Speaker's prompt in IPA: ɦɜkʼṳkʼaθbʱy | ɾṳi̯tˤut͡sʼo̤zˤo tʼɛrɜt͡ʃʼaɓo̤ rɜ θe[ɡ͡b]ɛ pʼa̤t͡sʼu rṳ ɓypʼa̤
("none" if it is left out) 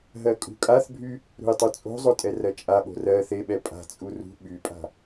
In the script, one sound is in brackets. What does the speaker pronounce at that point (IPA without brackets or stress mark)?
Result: ɓ